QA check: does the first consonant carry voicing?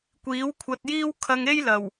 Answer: no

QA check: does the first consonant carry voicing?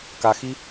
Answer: no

